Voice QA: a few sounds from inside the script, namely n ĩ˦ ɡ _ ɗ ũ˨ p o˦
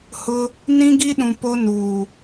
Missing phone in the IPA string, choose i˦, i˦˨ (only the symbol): i˦